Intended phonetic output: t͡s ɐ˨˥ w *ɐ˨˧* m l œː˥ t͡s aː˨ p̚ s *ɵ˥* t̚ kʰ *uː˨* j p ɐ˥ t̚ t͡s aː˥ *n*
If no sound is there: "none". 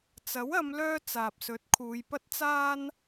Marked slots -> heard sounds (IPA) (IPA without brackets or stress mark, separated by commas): ɐ˨˧, ɵ˨˥, uː˨˧, n